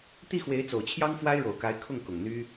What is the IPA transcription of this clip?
t̪ i˥˩ x w e˧˥ ɪ̯ t͡s o˨˩ ʊ̯ t͡ɕʰ j ɑ˥ ŋ f w a˥ ɪ̯ ɻ o˨˩ ʊ̯ k a˧˥ ɪ̯ kʰ ʊ˥˩ ŋ k ʊ˨˩ ŋ n̪ y˥

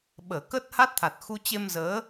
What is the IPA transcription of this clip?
ɓ əː˧˩ k ə˦˥ t̚ h a˦˥ t̚ t̪ʰ a˨˩ t̚ x u˧ t͡ɕ e˧ m z əː˨˦

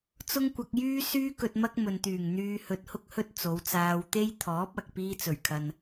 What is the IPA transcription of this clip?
t͡s ʊ˥ ŋ kʷ ɐ˧ k̚ j yː˥ s yː˧ k ɵ˨ t̚ m ɐ˧ k̚ m ɵ˨ n t̪ yː˨˩ ŋ n̪ yː˧ h ɵ˧ t̚ h ʊ˥ k̚ h ɵ˥ t̚ t͡s o˨˧ w t͡s aː˧ w t̪ e˥ j t̪ʰ ɔː˨˥ p̚ ɐ˨ k̚ p iː˧ t͡s ɵ˨˩ ɥ kʰ ɐ˨ n

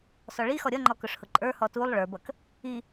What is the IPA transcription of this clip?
s ɔ ɭ i x ɔ ɾʲ ʌ ŋ͡ǃ ɔ k ʊ ʂ h ʊ ǃʼ ə˞ h ɔ t u lˠ ɭ ə˞ b ʌ k | i

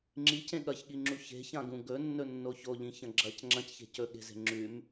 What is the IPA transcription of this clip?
ŋ͡ǁ i c ẽ ɠ ɐ ç ɠ i ŋ͡ǁ u ç e̤ ç ã ɡ ũ ɡ ɵ nː ɵ nː o ç o ʎ ĩ ç ɐ̃ ɡ͡ǁ ɐ c ŋ͡ǁ ɐ̃ c ç e̤ c ɵ ɠ e̤ z e̤ ŋ͡ǁ ʉ m

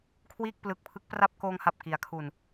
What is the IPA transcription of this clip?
kʰ w iː˥˩ k̚ p l ɯ˨˩ k̚ pʰ ɯ˦˥ k̚ p r a˥˩ p̚ k oː˧ ŋ h a˨˩ p̚ k i˩˦ a̯ kʰ u˨˩ n

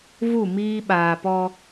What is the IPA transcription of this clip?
v u˦˨ m iː˦ ɓ aː˨ p ɔ˦

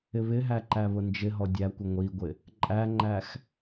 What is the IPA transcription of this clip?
ɪ β ɪ ɦ æ ǃ æ β ʊ n d͡ʒ ɪ ɦ ɔ dʲ æ kʷ ʊ ŋʷ i ɡʷ ɪ | ǃʼ æ ŋ͡ǃ æ x

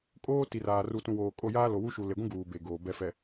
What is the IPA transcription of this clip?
kʼ oː˦ t i˨ r aː˨ r u˨ t ũ˨ w oː˨ kʼ o˦˨ j aː˦ l o˨ w u˦ ʃ u˨ l e˨ ɡʷ ũ˦ ɡ uː˨ b e˨ ɡ oː˨ b ɛ˨ f ɛ˨

